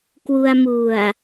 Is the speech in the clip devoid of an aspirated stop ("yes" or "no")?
yes